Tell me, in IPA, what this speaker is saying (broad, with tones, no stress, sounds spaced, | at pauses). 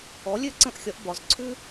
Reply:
ɔ˩˥ lʲ ø˥ ǀ ə̃˥˩ ʔ xʲ ɒ˩˥ ʔ b ɒ˩ z ǀʰ ʉ˥